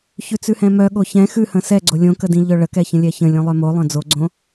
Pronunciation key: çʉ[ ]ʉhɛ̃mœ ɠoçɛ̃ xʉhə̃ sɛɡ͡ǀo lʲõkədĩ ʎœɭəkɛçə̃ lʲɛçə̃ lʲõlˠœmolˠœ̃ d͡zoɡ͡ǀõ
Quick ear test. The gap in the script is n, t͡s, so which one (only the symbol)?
t͡s